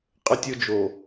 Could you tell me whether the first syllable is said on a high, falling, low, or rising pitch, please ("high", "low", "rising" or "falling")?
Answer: high